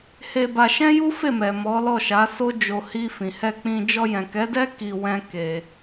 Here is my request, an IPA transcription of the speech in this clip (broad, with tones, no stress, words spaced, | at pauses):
he˧ba˧ ʃɛ̃˦ju˦fe˦˨mɛ˨ mɔ˨˦lɔ˦˨ʃa˨˦ so˦d͡ʒo˧ hi˧ fĩ˨hɛ˧k͡pĩ˧ d͡ʒɔ˧jɛ̃˨kɛ˨˦dɛ˦ ki˧ wɛ̃˦ke˧